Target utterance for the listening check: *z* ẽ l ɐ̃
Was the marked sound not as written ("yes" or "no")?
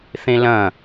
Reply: yes